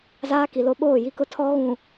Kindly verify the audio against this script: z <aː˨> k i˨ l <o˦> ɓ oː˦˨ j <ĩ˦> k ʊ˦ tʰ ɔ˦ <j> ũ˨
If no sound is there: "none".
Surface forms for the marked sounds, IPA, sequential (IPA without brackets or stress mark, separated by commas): aː˦, o˦, i˦, ɣ